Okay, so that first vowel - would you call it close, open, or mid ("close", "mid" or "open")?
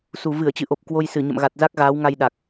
close